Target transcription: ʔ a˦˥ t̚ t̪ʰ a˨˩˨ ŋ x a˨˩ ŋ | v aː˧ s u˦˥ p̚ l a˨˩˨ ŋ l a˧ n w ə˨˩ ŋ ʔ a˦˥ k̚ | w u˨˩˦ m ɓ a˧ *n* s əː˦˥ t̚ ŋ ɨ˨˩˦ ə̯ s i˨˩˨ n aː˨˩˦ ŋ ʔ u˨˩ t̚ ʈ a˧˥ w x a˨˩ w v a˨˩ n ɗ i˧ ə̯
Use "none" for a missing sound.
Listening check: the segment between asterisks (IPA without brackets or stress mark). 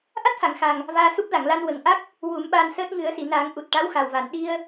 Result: n